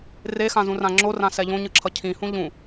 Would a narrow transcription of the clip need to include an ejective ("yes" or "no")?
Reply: no